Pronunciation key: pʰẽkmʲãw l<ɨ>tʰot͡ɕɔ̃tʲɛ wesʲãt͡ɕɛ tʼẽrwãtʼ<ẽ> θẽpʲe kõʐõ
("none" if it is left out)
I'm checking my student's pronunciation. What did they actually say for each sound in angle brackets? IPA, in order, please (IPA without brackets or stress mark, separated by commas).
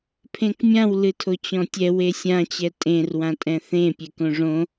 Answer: ɨ, ɛ̃